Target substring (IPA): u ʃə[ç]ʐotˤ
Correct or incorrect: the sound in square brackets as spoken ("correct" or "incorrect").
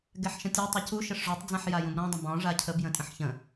incorrect